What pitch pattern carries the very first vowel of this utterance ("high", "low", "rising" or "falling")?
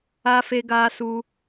high